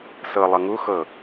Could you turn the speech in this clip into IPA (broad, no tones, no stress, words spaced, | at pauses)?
sɤ lˠʌŋu xɤ